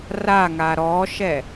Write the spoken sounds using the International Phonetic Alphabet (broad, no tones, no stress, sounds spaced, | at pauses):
r a ŋ a ɾ ɔ ʃ ɛ